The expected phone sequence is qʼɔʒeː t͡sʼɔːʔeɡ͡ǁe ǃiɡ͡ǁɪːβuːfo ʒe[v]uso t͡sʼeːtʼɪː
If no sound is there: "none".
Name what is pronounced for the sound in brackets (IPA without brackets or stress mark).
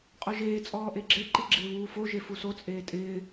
f